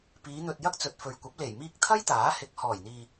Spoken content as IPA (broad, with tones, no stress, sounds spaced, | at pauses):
p iː˨˧ n̪ ɵ˨ t̚ j ɐ˧ k̚ t͡s ɵ˨ t̚ f ɵ˨ ɥ kʷ ɐ˨˥ p̚ l e˨˩ j m iː˧ k̚ t̪ʰ ɐ˥ j t̪ aː˨˥ h ɪ˨˥ k̚ h ɔː˨˩ j n̪ iː˨